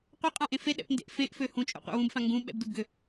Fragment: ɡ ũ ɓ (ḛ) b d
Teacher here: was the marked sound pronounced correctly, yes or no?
no